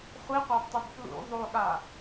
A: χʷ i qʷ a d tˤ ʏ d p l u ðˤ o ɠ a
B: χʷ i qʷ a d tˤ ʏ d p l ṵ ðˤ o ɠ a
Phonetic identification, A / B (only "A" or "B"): B